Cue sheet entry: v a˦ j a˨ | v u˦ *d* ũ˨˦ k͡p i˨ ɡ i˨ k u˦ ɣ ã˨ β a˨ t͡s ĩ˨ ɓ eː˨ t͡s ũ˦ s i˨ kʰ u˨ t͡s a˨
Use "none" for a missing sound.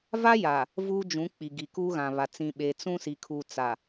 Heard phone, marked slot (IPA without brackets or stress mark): d͡ʒ